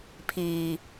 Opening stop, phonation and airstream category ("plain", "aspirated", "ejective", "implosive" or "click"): aspirated